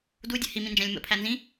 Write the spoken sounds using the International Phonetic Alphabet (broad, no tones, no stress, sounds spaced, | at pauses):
d u dʲ ɘ h i m ĩ n d͡ʒ æ̃ lʲ m ə̰ pʰ æ n z ĩ